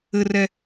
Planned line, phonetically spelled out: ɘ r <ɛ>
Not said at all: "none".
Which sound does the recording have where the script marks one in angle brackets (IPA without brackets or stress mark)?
ɛ